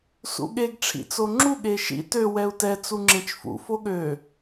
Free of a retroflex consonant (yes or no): no